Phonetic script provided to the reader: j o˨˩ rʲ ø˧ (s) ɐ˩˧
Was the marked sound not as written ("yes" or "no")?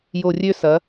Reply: no